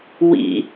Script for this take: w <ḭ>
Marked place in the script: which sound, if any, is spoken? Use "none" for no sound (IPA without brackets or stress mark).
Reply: ḭ